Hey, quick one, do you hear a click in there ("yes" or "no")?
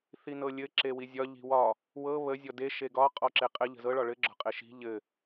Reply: yes